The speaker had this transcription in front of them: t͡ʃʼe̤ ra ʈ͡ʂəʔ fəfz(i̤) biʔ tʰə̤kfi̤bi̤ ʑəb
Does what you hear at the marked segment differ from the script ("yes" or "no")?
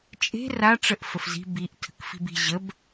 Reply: no